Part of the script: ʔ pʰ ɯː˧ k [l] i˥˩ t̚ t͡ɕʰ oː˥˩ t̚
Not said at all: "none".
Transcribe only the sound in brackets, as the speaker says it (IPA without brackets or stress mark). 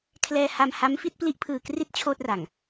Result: r